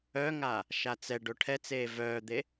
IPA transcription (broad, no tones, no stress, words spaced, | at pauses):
œŋa | ʃat͡sɛɖo ʈʰɛt͡seː vœːd̪e